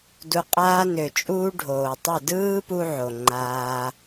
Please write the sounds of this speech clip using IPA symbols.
d u˧ qʼ aː˦ n ø˨ t͡ʃʼ uː˦ ɖʱ oː˨ tˤ ø˦˨ d ɯː˦ p u˧ ʕ o˨ ŋ͡ǃ aː˦

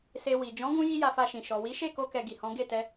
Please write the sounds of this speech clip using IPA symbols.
s e˧ w i˨ d͡ʒ ɔ̃˨˦ ɡ ũ˧ j i˦ j a˧ f a˧ ʃ ĩ˨ ʃ ɔ˨ w i˨˦ ʃ e˦˨ k o˧ k ɛ˨ ɡ i˨ h ɔ̃˨˦ ɡ e˦˨ t ɛ˧

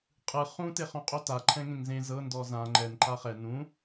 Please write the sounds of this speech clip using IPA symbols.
qʼ ɯ χ ũ t e χ õ qʼ o t a ǃʰ ɛ̃ ŋ ẽ ŋ z ẽ z ɤ n d ɔ z ã ŋ͡ǃ ɛ n ǃ a χ ɛ n ũ

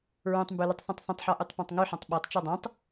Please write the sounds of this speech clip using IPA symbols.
ɹ õ tˤ m b ʉ l ə tˤ θ ɔ̃ tˤ θ ə̃ tˤ ħ ɔ ʔ ʉ tˤ p ɔ̃ tˤ ŋ ʉ ħ ɔ̃ tˤ ɓ o tˤ t͡ʃ ɔ dˤ õ tˤ

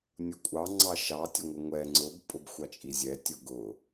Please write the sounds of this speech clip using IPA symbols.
nʲ ʊ kʷʼ ɑ ŋ͡ǀ ɑ ʃ ɑ tʲ ə ŋʷ ə ŋʷ ɛ ŋ͡ǀ ʊ b pʼ ʊ b xʷ ɑ t͡ʃʼ i zʲ ɛ tʲ ʊ ɡ ʊ

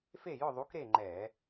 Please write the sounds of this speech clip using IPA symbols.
f e˥˨ j ʊ˥˨ ðˤ u˨˥ k ɾ e˥˨ ŋ͡ǃ ɛ˧˩˧

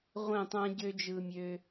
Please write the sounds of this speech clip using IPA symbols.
ʁʷ ẽ˦˨ tˤ æ̃˦ ɟ ø˦ d͡ʒ ɯ˧ mʲ ø˧

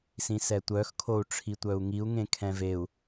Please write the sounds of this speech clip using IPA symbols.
s ĩ s ɛ tʷ œ x kʰ o u̯ ʈ͡ʂʰ i tʷ œ u̯ ŋ i u̯ ŋ ẽ kʰ ɛ̃ v e u̯

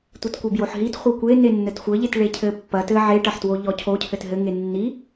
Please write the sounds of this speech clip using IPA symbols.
tʷ i t kʷ e b j o ħ ɦ i t χʷ ɐ kʷ e n e nː ɘ t xʷ ɘ ʎ e t ɭ e cʰ ɘ pː ɐ t ɘ ʕ e ʈ ɐ ħ t w o ʎ ɔ cʰ o cʰ ɘ t ɦ ɘ ŋ e nː i

